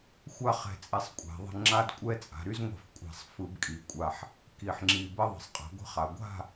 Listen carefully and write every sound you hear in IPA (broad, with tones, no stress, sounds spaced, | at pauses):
xʷ a˥˨ χ ɛ̤˨˩ t͡sʼ ɛ˨˩ sˤ kʷʼ a̤˩˧ ðˤ ə̤˦ ŋ͡ǁ a˦ d kʷʼ ɛ˦ t͡sʼ a̤˩˧ ɾ y˦ z ŋʷ ɛ̤˧˩˧ f kʷʼ a̤˧˩˧ sˤ f ɯ˧˩˧ b kʼ i˩˧ kʷʼ a˨˩ ħ | k i˩˧ ħ ŋ͡ǁ i˨˩ b ə˦ ðˤ ə̤˩˧ sˤ qʼ ə̤˩˧ ɡʷ ə̤˥˨ χ a˩˧ ɡʷ a̤˥˨